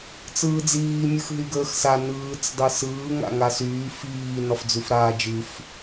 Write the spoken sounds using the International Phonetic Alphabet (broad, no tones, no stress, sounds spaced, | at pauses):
t͡s ɯː d͡z iː mʲ ɯ x ɦ y ɡ əː x s a n ɯː t͡s dˤ ɯ s ɯː ŋ a̰ ŋ a s yː f iː n ɒ f d͡z ʉ f ɾ aː d͡ʒ ɯ f